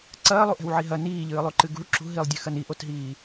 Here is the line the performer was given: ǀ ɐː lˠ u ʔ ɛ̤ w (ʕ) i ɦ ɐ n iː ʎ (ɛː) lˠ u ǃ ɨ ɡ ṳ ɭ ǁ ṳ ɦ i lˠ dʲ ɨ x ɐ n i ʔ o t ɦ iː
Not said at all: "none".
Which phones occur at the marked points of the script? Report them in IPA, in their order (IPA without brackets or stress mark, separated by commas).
ʕ, ɨː